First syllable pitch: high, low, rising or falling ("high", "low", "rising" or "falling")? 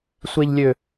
low